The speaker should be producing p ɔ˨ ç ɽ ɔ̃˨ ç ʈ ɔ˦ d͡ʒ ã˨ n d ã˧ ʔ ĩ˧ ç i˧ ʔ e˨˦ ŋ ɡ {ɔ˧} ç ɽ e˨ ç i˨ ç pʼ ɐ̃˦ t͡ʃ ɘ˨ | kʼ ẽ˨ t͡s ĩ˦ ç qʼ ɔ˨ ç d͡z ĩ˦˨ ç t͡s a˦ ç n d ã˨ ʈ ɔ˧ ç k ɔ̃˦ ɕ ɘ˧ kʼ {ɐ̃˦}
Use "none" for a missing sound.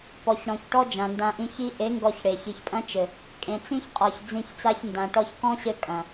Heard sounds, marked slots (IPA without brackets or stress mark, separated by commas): ɔ˧, ɐ̃˨